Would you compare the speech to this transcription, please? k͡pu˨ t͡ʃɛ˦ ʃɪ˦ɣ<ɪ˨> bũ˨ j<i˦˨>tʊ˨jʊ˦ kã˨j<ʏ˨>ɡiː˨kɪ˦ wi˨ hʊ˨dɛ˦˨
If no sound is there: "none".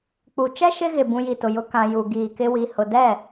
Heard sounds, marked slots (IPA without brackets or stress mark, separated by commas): ɪ˨, i˨, u˨